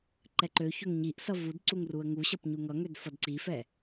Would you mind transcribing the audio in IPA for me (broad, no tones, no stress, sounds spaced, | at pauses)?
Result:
ǃ ɛ ǃ ø ç ø ŋ ɲ i ʔ s ʌ v u d ǀ u ŋ r u ə̯ ŋ u ɕ ʌ p ɲ u ŋ ʌ ŋ ø d f ʌ d ǀ i f ɛ